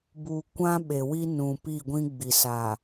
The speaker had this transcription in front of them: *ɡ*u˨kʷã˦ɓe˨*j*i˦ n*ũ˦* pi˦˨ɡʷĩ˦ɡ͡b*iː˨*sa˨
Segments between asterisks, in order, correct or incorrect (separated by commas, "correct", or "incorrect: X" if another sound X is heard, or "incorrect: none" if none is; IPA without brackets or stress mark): incorrect: b, incorrect: w, incorrect: ũ˨, incorrect: i˨